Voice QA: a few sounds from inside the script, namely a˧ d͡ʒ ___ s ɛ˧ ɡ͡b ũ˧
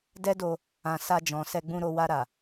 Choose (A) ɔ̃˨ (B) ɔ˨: A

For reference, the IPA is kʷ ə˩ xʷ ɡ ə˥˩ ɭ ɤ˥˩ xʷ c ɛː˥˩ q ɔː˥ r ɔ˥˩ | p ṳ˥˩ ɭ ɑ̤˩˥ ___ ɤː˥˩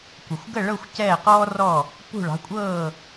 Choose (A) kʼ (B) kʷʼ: B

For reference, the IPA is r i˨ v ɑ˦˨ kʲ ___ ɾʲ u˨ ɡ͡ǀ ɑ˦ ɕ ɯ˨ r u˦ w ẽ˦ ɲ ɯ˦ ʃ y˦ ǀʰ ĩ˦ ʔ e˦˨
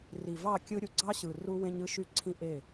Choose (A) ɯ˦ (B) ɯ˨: A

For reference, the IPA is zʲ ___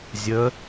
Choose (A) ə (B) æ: A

